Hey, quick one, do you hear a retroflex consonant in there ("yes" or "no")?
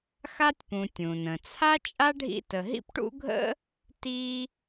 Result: yes